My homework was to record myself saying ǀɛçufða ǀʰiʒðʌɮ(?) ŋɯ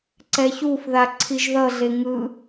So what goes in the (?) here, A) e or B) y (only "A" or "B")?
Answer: A